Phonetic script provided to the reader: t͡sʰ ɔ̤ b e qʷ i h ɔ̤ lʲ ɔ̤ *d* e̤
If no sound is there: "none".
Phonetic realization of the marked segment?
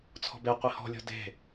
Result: d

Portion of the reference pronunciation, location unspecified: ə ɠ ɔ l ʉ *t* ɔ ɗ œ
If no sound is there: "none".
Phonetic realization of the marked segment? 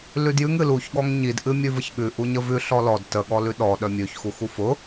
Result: ɗ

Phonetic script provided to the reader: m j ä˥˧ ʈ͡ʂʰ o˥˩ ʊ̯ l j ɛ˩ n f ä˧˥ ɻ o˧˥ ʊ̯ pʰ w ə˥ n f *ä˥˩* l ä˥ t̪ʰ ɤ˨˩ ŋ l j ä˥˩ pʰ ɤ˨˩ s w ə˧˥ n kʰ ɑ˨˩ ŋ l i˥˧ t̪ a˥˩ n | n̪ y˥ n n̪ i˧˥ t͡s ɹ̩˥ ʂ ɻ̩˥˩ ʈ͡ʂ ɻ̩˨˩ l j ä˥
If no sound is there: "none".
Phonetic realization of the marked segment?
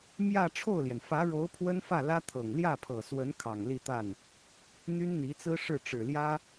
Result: ä˥˩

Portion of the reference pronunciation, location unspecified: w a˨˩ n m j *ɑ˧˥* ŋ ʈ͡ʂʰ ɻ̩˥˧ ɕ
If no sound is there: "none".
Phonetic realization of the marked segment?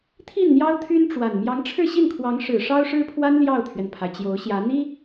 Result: ɑ˧˥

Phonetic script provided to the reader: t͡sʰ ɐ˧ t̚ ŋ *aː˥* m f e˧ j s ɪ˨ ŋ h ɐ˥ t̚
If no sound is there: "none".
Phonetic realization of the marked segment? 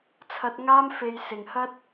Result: aː˥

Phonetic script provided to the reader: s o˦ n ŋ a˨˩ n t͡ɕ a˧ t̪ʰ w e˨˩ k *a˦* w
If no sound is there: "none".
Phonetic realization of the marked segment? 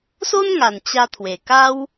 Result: a˦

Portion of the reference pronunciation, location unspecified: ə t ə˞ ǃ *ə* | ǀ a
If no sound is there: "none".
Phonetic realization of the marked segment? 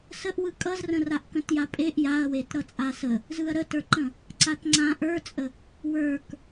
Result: ə̃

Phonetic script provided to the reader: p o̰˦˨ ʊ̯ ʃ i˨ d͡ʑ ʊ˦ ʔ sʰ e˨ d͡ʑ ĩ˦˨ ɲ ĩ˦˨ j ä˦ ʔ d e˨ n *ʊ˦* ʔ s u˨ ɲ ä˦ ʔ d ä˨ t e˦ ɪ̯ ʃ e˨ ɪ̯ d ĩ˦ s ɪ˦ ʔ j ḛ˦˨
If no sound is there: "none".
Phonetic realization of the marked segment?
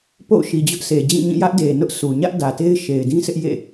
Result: ʊ˦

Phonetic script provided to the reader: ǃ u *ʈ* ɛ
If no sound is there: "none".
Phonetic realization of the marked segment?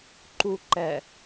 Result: ǃ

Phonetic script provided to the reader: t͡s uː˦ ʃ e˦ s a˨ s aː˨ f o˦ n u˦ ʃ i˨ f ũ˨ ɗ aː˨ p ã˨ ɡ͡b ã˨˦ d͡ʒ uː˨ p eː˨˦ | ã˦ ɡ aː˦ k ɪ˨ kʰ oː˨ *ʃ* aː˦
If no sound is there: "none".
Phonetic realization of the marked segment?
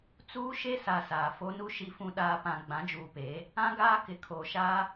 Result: ʃ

